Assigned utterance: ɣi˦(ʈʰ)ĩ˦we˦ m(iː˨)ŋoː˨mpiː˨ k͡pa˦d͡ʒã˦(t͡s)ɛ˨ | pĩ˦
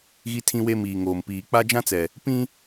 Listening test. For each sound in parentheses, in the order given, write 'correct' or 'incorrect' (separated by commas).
incorrect, correct, correct